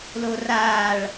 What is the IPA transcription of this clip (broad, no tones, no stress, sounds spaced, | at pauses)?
l o r aː ɭ